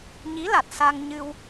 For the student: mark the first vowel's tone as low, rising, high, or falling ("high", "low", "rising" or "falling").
rising